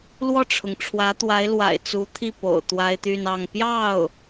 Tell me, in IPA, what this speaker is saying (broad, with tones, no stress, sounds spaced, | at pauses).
l w ɔ˥˩ ʈ͡ʂʰ ʊ˩ ŋ ʈ͡ʂʰ w ä˧˥ t̪ w a˧˥ ɪ̯ l w a̰˨˩ ɪ̯ t͡s u˧˥ t̪ʰ i˥˩ p o̰˨˩ ʊ̯ t̪ w a˥ ɪ̯ t̪ y˥˧ n ɑ˥˧ ŋ p j ɑ˥˩ ʊ̯